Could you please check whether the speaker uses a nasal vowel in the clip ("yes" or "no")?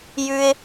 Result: no